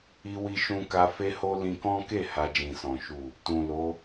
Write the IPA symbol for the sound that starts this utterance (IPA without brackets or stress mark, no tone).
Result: i